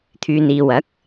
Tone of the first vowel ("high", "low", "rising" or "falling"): low